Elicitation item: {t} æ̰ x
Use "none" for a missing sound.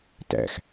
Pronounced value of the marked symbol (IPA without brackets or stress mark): t